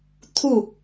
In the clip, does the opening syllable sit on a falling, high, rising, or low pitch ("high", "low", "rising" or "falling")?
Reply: falling